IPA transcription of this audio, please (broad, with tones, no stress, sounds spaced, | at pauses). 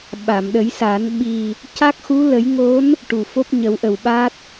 ɓ a˨˩˨ m ɗ ə˨˩˦ j s a˨˩˦ n ɓ i˨˩ | c a˦˥ k̚ x u˧˥ l ə˨˩˦ j ŋ o˧˥ n | ʈ u˨˩ f o˦˥ p̚ ɲ ə˨˩˦ w ʔ ə˨˩ w ɓ a˦˥ t̚